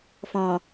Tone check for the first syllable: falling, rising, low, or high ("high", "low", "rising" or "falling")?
low